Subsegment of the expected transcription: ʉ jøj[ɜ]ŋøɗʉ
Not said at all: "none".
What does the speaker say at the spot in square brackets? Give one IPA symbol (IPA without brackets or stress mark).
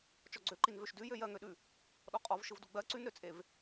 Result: ɜ